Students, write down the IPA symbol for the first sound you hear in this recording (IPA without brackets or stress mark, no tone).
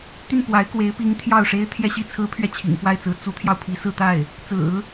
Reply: t̪